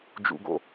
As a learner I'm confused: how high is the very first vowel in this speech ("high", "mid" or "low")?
high